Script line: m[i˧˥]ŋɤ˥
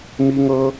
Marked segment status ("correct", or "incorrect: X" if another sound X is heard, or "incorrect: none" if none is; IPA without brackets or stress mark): incorrect: i˥